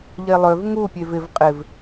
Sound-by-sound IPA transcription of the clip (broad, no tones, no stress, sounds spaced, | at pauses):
ʎ e lˠ ø v ŋ u pʲ e v ɪ v qʼ ɪ v